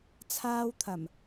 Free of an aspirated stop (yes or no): no